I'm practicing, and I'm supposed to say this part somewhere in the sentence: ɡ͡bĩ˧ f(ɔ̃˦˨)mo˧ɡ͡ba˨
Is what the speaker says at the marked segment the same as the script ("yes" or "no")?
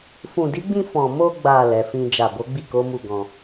no